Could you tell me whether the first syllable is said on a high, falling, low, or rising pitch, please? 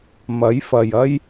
rising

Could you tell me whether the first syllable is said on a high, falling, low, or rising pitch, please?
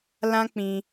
high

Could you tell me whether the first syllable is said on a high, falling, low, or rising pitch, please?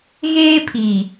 high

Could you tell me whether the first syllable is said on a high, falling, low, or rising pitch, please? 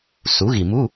rising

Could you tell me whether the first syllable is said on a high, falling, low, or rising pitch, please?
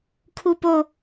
high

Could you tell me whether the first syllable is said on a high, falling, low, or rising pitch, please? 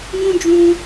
high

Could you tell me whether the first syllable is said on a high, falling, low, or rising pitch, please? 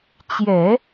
low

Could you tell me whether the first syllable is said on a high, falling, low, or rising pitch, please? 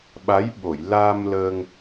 rising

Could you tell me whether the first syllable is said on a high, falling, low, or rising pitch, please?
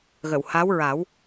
low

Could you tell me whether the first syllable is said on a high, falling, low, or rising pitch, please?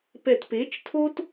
low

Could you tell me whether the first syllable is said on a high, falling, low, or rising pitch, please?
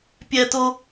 high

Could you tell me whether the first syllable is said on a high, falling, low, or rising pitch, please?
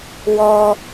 high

